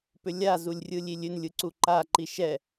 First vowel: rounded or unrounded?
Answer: rounded